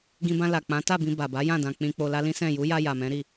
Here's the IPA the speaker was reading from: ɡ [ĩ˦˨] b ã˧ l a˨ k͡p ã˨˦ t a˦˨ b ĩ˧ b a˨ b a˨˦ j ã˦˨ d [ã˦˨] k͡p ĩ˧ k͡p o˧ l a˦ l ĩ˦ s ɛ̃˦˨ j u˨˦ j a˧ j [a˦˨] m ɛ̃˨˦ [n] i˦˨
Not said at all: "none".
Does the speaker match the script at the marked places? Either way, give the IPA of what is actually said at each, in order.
ĩ˧, ã˧, a˨, ɾ

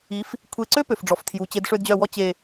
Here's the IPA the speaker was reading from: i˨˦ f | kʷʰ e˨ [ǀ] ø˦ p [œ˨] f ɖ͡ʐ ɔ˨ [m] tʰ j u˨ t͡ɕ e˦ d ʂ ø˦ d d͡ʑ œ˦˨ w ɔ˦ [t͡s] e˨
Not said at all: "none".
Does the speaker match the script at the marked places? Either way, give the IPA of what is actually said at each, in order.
ǀ, ø˨, f, t͡ɕ

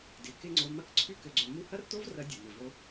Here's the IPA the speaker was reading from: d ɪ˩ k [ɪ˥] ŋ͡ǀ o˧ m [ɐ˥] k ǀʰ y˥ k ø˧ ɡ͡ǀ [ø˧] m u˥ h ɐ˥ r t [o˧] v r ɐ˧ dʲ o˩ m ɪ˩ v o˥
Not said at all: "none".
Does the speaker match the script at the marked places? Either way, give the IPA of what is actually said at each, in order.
ɪ˥, ɐ˥, ø˧, o˥

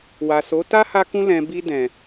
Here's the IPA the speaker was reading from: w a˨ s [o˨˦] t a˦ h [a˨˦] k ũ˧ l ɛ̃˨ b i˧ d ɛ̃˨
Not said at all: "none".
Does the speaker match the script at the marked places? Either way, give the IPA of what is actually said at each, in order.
o˨˦, a˧

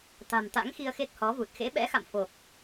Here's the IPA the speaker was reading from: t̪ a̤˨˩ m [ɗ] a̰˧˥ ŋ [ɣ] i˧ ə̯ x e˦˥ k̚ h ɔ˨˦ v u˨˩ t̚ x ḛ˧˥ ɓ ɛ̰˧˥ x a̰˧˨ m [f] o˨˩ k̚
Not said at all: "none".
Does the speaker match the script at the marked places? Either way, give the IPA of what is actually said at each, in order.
t̪, x, f

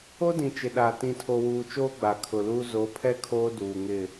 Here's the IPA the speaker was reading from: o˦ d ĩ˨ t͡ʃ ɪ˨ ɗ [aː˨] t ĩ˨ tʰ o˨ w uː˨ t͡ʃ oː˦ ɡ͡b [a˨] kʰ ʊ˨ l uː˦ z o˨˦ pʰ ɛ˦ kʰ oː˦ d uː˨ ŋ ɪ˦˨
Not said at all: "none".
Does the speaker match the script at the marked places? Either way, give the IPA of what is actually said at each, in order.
aː˨, a˨

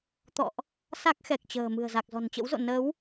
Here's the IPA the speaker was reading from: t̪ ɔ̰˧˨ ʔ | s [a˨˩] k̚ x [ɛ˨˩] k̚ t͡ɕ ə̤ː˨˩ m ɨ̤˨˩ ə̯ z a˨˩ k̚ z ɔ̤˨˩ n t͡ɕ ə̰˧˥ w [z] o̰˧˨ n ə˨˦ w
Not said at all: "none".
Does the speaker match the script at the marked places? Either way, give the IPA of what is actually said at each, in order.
a˦˥, ɛ˨˩, z

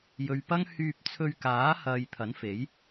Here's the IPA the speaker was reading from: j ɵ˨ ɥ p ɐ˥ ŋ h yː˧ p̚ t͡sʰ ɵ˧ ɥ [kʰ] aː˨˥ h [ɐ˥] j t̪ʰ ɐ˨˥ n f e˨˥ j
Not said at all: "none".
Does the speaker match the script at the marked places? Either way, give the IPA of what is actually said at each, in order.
k, ɐ˨

